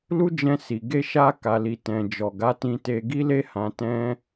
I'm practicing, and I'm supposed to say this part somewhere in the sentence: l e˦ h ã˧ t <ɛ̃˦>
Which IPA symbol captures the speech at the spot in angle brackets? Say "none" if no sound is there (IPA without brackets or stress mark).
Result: ɛ̃˦